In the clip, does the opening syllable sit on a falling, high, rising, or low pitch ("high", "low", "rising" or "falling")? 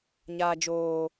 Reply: high